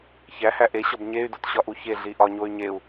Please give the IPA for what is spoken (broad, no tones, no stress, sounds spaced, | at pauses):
ç æ h æ ʔ e ɕ ɒ b ɲ e y̯ d o t ɕ ɒ ʔ u ç e ɮ i ʔ ɒ ɲ o y̯ ɲ e u̯